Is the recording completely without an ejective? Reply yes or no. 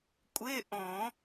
no